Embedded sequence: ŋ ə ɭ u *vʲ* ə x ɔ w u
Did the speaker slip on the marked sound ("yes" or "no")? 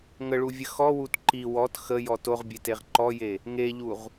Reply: no